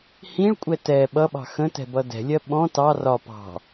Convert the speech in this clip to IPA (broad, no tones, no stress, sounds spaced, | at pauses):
h ĩ ɭ kʷʼ ɛ t ɛ ɓ ʌ ɓ ɑ̤ x ə̃ t ɛ̤ b ʌ d ɛ̤ lʲ ɜ ɓ ɔ̃ t ɑ r ɒ p ɑ̤